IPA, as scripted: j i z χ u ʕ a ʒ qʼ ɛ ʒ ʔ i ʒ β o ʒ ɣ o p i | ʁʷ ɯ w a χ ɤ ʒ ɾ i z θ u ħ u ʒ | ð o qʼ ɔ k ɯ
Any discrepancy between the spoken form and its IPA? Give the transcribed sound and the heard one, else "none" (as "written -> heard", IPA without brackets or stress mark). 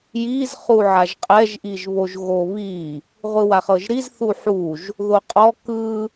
p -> β